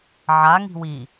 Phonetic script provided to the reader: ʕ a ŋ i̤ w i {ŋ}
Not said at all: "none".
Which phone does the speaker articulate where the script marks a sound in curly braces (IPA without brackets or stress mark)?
none